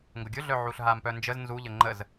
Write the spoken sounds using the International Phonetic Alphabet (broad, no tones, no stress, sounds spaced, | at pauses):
ŋ ɡ ʊ ɡʲ ʊ ɮ œ ʕ u ɬ ɦ a m p œ n d͡ʒ ə z n z u ʎ ə ŋ͡ǃ ə z